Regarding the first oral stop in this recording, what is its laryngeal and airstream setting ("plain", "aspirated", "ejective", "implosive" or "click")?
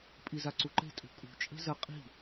ejective